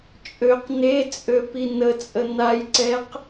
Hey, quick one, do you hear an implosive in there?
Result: no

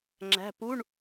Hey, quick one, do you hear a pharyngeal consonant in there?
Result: no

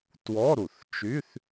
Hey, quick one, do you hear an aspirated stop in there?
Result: no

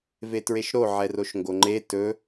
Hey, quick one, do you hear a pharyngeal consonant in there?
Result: yes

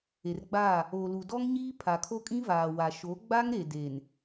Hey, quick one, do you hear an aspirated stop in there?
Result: yes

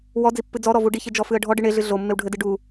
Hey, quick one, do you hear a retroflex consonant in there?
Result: yes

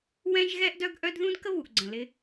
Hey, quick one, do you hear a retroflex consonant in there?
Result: no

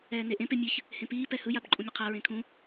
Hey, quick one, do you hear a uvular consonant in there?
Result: yes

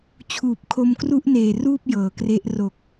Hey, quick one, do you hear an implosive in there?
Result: no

